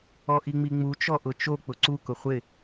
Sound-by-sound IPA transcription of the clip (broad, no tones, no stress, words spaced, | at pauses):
ɔʔiŋ͡miŋ͡mu t͡ʃɔʔʊt͡ʃo k͡pʊǀu kʊχʷɪ